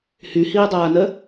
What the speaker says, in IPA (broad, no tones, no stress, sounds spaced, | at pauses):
h y h iː dˤ aː n ɜ